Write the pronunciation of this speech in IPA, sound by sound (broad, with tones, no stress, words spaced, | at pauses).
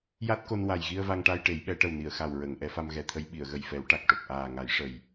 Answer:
ja˦˥t̚ko˧n wa˨˩jɣi˧ə̯va˧ŋ ʈa˧jʈe˨˩˦jɓɛ˨˩˦ʈə˨˩w ni˨˩˨ə̯xa˨˩w ɹə˨˩˨ŋ ʔɛ˨˩˦fa˧mɣɛ˨˩t̪ʰə˧˥j ɓi˨˩˨ə̯ɣə˨˩jfɛ˨˩˦wʈa˨˩k̚ ʈo˨˩k̚ʔaː˨˩ŋa˨˩˦j ʂə˨˩j